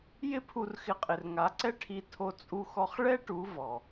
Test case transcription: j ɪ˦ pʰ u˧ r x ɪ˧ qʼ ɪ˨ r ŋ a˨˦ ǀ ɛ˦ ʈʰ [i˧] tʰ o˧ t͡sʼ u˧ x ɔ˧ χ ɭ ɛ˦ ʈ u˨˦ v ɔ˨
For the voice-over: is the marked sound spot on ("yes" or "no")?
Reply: yes